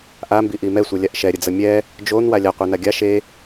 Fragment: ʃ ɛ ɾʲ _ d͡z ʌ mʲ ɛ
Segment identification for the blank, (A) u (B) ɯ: B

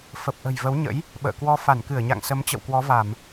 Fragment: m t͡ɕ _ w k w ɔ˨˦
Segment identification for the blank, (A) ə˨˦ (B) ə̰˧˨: B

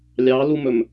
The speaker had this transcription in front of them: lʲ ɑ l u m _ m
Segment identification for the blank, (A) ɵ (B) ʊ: A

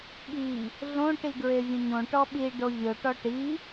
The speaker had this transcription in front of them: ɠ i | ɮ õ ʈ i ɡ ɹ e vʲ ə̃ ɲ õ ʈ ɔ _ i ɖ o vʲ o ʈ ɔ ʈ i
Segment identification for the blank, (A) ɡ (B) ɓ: B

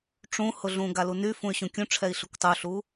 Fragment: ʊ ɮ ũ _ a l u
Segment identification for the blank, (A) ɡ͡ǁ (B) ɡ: B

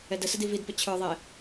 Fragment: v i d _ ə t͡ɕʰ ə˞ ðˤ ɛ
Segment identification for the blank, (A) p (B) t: A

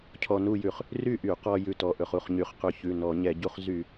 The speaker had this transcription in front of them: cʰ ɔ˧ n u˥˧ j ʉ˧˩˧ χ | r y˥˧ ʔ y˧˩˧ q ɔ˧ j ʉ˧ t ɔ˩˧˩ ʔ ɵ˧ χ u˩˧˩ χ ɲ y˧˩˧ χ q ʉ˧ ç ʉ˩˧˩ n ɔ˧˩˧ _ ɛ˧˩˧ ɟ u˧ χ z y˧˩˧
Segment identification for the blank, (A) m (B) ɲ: B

